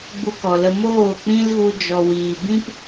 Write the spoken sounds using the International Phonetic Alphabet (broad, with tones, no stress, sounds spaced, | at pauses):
ɡ͡b u˧ k ɔ˨ l ə˧ m oː˦˨ k͡p ĩ˦ l ɣ u˧ d͡ʒ ɔ˨ w iː˨ b ĩ˦ p